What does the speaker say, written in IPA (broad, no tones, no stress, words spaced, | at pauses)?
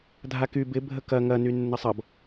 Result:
dʱaky bɪ bʱəkɐ ŋɐ nynːəsˤʌb